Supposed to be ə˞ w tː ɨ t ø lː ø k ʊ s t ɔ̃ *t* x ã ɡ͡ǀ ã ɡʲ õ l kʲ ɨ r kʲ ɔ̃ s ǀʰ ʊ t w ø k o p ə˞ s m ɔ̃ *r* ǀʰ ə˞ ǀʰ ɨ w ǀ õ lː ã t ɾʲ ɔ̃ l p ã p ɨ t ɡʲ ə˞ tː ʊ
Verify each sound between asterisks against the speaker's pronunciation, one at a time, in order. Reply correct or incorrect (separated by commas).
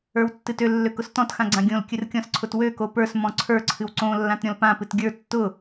correct, incorrect